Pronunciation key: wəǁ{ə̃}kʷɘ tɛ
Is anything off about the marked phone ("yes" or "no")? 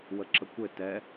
yes